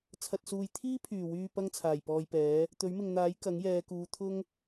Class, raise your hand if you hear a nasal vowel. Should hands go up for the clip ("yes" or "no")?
no